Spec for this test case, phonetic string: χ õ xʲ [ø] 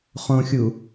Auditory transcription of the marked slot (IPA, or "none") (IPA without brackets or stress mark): u